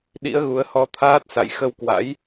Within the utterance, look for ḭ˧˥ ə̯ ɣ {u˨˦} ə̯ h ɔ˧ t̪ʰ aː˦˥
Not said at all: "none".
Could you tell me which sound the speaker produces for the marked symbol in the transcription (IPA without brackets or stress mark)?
u˨˦